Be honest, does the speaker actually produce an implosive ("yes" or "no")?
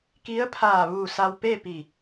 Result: no